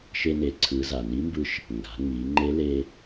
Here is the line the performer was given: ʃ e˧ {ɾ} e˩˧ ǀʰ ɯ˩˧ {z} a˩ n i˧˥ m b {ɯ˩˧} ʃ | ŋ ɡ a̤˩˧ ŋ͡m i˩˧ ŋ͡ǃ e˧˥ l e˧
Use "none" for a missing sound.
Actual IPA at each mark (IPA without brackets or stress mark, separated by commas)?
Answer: n, z, ɯ˧